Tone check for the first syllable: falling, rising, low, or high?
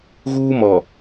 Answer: high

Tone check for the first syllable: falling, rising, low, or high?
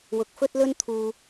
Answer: low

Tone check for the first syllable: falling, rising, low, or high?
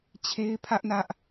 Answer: high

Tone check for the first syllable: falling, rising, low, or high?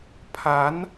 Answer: rising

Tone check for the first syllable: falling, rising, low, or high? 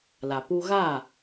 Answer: low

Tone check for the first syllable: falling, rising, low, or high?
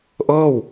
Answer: falling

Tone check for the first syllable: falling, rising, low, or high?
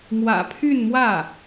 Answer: low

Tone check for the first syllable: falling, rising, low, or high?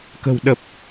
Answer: low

